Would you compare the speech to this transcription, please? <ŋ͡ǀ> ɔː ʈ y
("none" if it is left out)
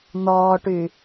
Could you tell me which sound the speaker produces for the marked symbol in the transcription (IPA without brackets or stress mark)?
n̪